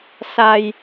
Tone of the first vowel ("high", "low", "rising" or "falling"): low